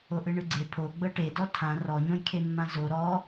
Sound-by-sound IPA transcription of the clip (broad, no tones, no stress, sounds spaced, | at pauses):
o ʔ ɯ ɳ ɯ ɡ͡ǀ e pʰ o ɡ͡b ɤ ʈ e d ɔ tʰ ã r ɔ ɲ õ j kʰ e mː ã z o ɾ ɔ